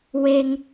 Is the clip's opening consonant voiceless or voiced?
voiced